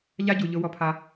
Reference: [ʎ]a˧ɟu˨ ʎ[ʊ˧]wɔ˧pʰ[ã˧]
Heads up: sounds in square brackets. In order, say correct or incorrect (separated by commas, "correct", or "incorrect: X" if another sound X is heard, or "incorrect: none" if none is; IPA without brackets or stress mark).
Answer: correct, correct, incorrect: a˧